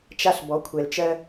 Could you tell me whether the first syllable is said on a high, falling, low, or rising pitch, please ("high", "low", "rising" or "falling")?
high